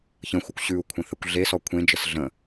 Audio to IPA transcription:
ç ə̃ xʷ ɜ kʷ ɕ ʉ u̯ kʷʰ ə̃ θ ɜ kʷ ɮ e s ɔ kʷʰ ẽ d͡ʒ ə s ɮ ə̃

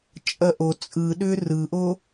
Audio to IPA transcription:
t͡ʃʼ ɐ ʔ o t͡sʼ ɯ ɗ ʏ r ɯ ʔ o

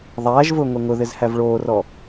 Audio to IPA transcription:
ðˤ æː ʒ v ʊː ŋʷ e ŋ ʊ ð ɪ z h æ v ɭ oː r ɔ

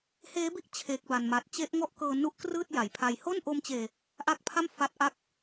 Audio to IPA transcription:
h eː˦˥ b i˥˩ ʔ t͡ɕʰ eː˦˥ k̚ b a˧ n m a˨˩ t̚ t͡ɕ e˦˥ ʔ ŋ ɔ˥˩ ʔ k ɤː˧ n u˦˥ ʔ k r ɯː˥˩ t̚ j a˩˦ j pʰ a˧ j h o˥˩ n ʔ o˧ m t͡ɕ eː˨˩ | ʔ a˦˥ k̚ pʰ a˥˩ m f a˦˥ t̚ ʔ a˦˥ k̚

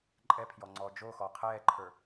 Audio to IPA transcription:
ǃʼ ɛ pʰ j ɔ ŋ͡ǀ ɔː d͡ʒ o x ɔ qʰ ɛː ǃʰ ə˞

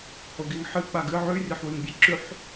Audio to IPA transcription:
h o ɡ i ŋ ħ ɨ k͡p a ɡ ɨ ʕ ʉ rʲ ɐ ħ w ʉ ŋ bʲ ɐ ǁ ʉ ħ

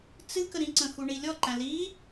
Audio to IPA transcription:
t͡s ɨ k ə ɾ ĩ ǀ ə̃ x u ɳ i lʲ ɔ ǃ æ̃ l i

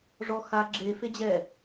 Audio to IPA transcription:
ʐ ɔ x a ɡ͡ǁ e f e d͡ʑ ɛ

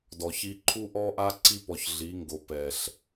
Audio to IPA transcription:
d ɔ˨ ç i˦ ǃʰ u˦ ʔ ɔ˦ ʔ a˦ ǀ i˦ p ɔ˨ ç ɮ i˨˦ ŋ ɡ o˨ p ɛ˨ ɬ

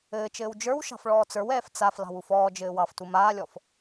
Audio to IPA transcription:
ɘː t͡ʃ ɘː w d͡ʒ ə˞ w ʃ ɑ̤ f ɭ ɔː t͡s ə˞ w ɛː f t͡s a f l ɑ̤ w u f ɔː d͡ʒ ɘː w ɑ f t u m aː lʲ ɔ f

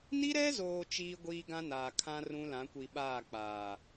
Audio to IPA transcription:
n i˦ ɾ ɛ˦ z oː˨ t͡ʃ iː˦ ɡʷ iː˦ ɡ ã˦ n aː˨ kʰ ã˦ r ũ˦ l ã˨˦ kʷ i˨ ɓ aː˦˨ k͡p aː˨

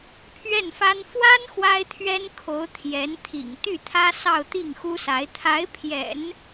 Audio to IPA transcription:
pʰ ɥ ɛ˥˩ n f a˥ n f w a˥ n x w a˥ ɪ̯ t̪ʰ ɥ ɛ˥ n kʰ o˧˥ ʊ̯ t̪ʰ j ɛ˧˥ n t̪ʰ ḭ˨˩ ŋ t̪ y˥˩ t̪ʰ ä˥ s ɑ˥˧ ʊ̯ t̪ i˥˩ ŋ x u˥ s a˧˥ ɪ̯ t̪ʰ a˧˥ ɪ̯ pʰ j ɛ̰˨˩˦ n

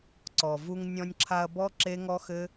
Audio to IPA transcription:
ǀ ɔ˨ v u˧ ŋ nʲ ɔ̃˧ nʲ ǁʰ a˧ ɐ̯ b ɔ˦ ǁ e˦ ŋ ɔ˦ x ɘ˦

